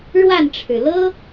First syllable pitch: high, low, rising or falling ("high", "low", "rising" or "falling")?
falling